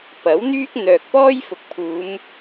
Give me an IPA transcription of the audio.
p ɐ˨˥ w n̪ yː˥ k̚ n̪ œː˨ k̚ p ɔː˥ j f ʊ˨ k̚ pʰ uː˨˧ m

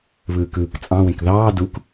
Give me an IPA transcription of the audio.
β ɯː k ɯː k t͡sʼ ɑ̃ w ẽ k ð ɑː d u k

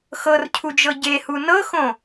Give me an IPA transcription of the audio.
x ɤ r cʰ u d͡ʒ ɤ ɟ e h u n ɤ x õ

